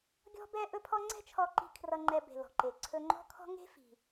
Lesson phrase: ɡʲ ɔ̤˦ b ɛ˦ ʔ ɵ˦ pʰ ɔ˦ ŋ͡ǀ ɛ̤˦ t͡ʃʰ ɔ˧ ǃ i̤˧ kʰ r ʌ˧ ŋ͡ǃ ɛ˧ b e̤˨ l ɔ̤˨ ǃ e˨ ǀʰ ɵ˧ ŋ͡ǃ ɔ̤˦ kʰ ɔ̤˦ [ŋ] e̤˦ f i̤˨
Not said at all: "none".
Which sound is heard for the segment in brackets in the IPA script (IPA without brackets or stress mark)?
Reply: ŋ